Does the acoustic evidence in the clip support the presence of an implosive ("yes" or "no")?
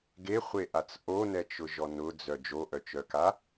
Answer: no